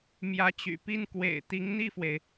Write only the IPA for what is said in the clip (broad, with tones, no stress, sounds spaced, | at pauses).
m j ä˧˥ t͡ɕ y̰˨˩ p i˥˩ n k w ḛ˨˩ ɪ̯ t̪ i˧˥ ŋ n̪ i˥˩ f w e˩ ɪ̯